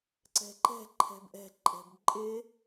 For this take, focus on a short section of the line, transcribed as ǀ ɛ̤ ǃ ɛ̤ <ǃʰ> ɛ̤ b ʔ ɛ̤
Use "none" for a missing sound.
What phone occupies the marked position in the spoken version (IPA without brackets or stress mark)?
ǃʰ